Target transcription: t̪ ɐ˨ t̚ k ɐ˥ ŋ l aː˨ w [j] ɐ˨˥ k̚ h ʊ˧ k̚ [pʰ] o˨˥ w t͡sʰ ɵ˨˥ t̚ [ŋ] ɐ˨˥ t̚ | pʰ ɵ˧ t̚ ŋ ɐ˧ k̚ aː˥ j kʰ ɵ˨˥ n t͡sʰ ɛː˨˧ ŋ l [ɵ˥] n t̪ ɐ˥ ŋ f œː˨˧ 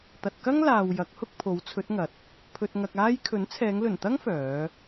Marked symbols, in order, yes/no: yes, yes, yes, no

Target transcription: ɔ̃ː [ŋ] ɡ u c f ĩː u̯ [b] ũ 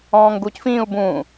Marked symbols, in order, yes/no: yes, yes

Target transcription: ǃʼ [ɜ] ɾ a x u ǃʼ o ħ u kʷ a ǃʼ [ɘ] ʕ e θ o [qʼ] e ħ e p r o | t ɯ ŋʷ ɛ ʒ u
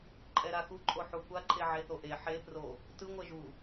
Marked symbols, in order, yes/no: no, no, no

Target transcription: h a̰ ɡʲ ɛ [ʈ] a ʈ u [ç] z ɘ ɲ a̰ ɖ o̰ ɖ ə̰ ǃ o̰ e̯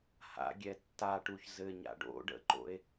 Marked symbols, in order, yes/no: no, yes

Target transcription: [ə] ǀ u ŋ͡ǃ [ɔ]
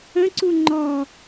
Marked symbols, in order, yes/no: no, yes

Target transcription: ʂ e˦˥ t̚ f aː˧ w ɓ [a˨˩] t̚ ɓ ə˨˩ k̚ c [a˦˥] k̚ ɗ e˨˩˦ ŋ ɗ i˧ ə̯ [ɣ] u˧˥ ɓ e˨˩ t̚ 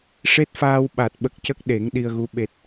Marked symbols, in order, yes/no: yes, no, yes

